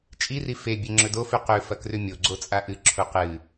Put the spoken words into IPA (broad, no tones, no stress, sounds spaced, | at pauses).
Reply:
t͡ʃʼ i r i f e bʲ e ŋ͡ǁ ɵ d o f ʉ q ʉ f ɐ k r ʉ mʲ o ɡ͡ǀ o t͡sʼ a ʔ ɨ ǁʰ u q ɨ